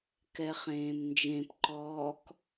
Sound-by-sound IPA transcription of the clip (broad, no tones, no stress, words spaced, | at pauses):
kɛχẽːmnd͡ʒẽpǃɔːk